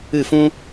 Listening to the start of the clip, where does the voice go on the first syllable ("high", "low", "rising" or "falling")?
falling